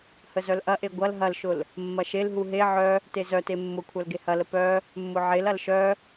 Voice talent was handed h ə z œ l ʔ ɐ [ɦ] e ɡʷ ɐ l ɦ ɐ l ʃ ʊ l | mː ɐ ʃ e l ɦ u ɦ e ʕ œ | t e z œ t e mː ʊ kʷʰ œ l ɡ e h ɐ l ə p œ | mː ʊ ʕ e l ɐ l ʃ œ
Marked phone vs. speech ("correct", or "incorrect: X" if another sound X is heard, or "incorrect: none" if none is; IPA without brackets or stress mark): incorrect: ʔ